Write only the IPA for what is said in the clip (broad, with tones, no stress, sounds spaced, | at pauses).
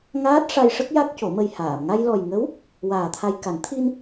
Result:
ŋ aː˦˥ t̚ ʂ a˧ j ʂ ə˦˥ k̚ j a˦˥ k̚ c o˨˩˦ m ə˧ j h aː˨˩˨ m ŋ a˧ j l ɔ˨˩ j ŋ ə˧˥ w | w aː˨˩ t̪ʰ a˧ j k a˨˩˦ n t̪ʰ i˧ n